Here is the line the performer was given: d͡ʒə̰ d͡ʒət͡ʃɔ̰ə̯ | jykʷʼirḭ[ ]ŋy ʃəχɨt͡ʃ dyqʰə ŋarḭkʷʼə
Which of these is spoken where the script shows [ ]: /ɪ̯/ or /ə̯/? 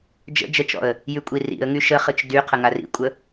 ə̯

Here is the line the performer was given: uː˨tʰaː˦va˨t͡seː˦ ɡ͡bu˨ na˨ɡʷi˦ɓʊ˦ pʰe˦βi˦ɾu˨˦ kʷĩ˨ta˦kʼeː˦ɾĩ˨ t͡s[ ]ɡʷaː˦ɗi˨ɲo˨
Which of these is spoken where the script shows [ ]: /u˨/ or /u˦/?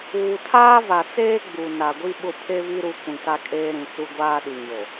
u˦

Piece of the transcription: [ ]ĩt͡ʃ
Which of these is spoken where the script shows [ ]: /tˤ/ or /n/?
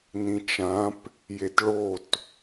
n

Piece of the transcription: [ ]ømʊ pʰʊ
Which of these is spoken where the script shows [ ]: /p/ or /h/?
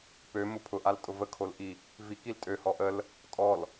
p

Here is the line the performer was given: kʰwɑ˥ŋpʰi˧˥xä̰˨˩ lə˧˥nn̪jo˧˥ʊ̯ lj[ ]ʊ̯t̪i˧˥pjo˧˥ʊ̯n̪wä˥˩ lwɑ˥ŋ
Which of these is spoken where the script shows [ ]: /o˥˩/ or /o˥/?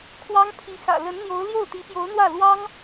o˥˩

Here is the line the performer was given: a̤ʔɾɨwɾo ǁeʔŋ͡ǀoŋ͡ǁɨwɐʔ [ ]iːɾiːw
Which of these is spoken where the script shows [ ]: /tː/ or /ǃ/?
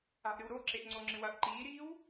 ǃ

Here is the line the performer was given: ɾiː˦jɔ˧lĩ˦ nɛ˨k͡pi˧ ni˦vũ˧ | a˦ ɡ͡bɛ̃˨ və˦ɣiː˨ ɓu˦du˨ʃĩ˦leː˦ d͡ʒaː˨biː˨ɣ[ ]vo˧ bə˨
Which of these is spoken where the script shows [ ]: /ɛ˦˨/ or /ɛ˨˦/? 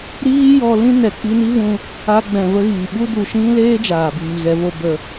ɛ˨˦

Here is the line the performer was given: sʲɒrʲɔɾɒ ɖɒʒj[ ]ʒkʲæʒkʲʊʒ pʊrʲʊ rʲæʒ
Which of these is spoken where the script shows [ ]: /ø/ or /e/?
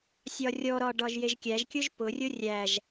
e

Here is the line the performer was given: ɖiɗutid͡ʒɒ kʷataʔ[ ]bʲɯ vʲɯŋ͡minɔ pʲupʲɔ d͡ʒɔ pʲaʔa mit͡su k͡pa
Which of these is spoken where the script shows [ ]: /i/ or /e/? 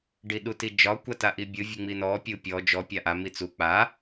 i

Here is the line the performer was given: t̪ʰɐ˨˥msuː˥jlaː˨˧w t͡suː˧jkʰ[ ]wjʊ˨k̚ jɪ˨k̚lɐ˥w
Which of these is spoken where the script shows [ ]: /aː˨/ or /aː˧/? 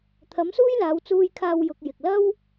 aː˧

